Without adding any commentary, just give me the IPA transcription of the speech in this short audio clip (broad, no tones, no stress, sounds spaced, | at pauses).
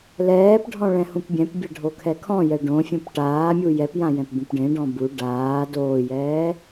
l ɛː p ɖʱ ɔ̃ ɭ ɛ̃ h ũ p bʲ ɛ̃ p bʲ ɛ ɖʱ o kʰ ɛ kʰ ɔ̃ j ɛ ɖ õ fʲ ũ p ʈ aː mʲ u j ɛ p j ã j ɛ̃ p b ũ p ɖ ẽ ɖ ɔ̃ b u ɖ aː d oː j ɛː